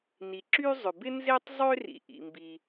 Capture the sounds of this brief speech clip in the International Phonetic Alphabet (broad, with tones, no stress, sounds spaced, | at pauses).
n i˩ ǁ y˥ zˤ ʏ˩ b ɪ˥ n z e˥ tˤ zˤ ø˥ r ḭ˩ ʔ ḭ˩ m b i˩